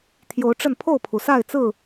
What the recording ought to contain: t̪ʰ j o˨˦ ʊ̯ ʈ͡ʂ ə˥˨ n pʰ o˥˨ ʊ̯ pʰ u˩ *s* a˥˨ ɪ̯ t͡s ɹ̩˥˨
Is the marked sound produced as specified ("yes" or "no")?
yes